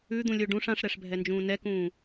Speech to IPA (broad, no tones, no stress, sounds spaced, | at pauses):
ʉ d̪ ũ lʲ o ɖ ũ ʂ ã ʂ ɾ ɛ ʂ bʱ ɛ n d͡ʒ ũː n ɛ k ũː